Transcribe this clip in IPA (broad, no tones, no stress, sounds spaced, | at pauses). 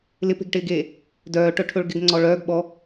l ɪ p e̤ ɡ ʈ ɪː ɡ eː | d œː ʈ œ ʈʰ ɵ ɭ ɡ ɪ ɡ ŋ͡ǀ ɔ ɭ œː ɡ ɓ ɔ